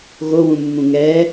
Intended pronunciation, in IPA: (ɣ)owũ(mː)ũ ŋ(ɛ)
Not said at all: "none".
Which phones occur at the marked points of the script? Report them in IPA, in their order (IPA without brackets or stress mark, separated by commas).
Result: ɣ, mː, ɛ